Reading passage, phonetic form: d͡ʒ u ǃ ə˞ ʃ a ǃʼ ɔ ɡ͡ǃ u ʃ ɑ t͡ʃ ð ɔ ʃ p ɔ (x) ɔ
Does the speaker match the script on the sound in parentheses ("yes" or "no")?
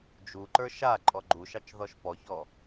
no